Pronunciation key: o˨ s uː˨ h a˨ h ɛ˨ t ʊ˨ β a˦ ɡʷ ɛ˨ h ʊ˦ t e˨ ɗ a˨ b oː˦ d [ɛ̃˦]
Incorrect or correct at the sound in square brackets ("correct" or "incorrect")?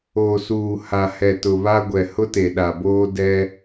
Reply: incorrect